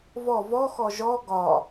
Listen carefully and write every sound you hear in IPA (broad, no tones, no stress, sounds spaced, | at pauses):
v ɔ v ɔ x ɔ ʒ ɔ ɡ ɒ